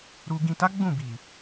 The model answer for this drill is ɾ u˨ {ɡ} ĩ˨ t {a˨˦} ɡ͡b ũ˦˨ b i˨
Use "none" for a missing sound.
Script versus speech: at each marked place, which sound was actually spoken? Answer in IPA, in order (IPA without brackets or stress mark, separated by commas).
ɡ, a˨˦